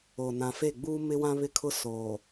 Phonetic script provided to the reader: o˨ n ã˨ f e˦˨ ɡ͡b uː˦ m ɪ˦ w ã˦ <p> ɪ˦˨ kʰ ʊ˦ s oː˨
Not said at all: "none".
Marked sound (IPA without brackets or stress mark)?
β